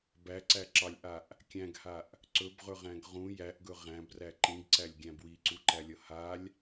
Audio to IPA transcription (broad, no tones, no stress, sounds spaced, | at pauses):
b æ ǀ æ ǁ ɑ lʲ ʔ a ʔ | kʲ æ̃ ɡ h a ʔ | ǀ ɵ b ʁ ɵ ʁ æ̃ ɡ ʁ ũ j æ ʔ ɡ ɵ ʁ æ̃ b r æ ǃ ĩ ɡ ǀ æ lʲ ɡʲ æ̃ b w i ǀ u ǃ æ lʲ ʌ h a lʲ